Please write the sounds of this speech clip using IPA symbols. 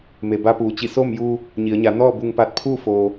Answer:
m e˩ b a˧ p uː˩ t͡ɕ i˧˩ s oː˥˨ m j uː˧ | ɲ i˩˧ ə̯ ɲ a˩˧ n ɔː˥˨ b u˧ ŋ p a˧ t̚ pʰ uː˥˨ f oː˩

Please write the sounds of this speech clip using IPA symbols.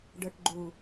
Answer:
ɖ ə˞ ʈ ɡ͡ǃ u

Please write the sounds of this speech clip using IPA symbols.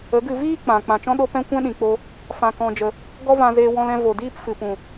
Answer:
ə˨˦ ɡ ɨ˧ v iː˦ k͡p ã˨ k͡p ã˨ t͡ʃ ɔ̃˦ ɗ o˦ p ɛ̃˦ kʷ ɛ̃˦ ɗ ĩ˨ k͡p o˧ | f ã˧ k ɔ̃˧ d͡ʒ ə˧ | ɡ ɔ˦ v ã˧ z eː˧ w ɔ̃˧ l ɛ̃˧ v o˨ d iː˦ p f ɨ˨ p ũ˨

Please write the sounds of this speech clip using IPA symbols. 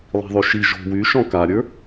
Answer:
lˠ i̤ ðˤ y ʃ i ʒ o̤ w y ʃ ɔ̃ k a ɾʲ ə˞

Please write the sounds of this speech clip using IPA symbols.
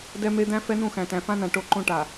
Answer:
d ɛ˦ m e˦ d̪ æ̃˦ f ɛ˦ n ũ˦˨ x æ̃˨ t æ̃˨ f ã˦ n ã˨ ʈ o˦˨ ǃ õ˦ ʈ a˨

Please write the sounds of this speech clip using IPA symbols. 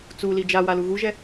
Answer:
t͡s u l i d͡ʒ a w a l u ɣ u ʒ ɛ

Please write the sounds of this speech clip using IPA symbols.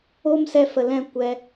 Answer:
o˦ m s ɛ˧ f ə˨ l ɛ̃˦˨ kʷ ɛ˦

